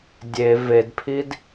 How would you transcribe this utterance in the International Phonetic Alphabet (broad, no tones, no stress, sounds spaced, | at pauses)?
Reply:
dʲ e v e d pʰ i d